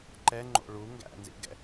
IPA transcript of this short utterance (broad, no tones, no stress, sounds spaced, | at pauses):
ǃ ɛ ŋ͡ǃ o̰ ɭ u ŋ ɡ æ̰ n z ḭ ɡ ɛ̰